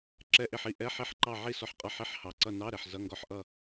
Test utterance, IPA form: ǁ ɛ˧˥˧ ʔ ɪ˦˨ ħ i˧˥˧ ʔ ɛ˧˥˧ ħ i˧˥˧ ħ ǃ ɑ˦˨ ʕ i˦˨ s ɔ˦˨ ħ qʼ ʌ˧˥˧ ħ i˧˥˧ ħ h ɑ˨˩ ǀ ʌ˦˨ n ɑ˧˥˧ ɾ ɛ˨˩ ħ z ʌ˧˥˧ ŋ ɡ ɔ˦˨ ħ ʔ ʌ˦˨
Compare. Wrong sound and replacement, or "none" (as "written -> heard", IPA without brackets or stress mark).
none